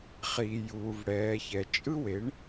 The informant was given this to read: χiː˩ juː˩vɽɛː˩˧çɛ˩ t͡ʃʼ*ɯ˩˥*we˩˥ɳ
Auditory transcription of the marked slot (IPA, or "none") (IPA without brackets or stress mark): ɯ˥